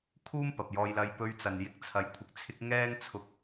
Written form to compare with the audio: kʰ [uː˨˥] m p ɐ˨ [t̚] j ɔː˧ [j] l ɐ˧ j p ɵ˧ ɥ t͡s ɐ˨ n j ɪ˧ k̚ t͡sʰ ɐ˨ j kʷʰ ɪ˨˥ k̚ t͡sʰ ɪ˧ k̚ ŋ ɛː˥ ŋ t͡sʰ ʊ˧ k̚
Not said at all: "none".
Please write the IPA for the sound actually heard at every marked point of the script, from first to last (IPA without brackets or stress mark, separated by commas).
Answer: uː˥, p̚, j